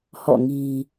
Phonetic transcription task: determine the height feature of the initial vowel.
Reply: mid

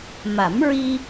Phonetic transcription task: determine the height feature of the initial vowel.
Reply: low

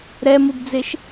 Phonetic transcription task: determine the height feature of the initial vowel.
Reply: mid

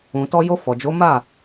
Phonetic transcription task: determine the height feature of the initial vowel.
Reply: high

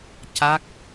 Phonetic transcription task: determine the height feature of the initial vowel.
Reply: low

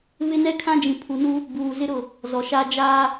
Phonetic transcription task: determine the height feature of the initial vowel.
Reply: high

